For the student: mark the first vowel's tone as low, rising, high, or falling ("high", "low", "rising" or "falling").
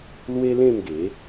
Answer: high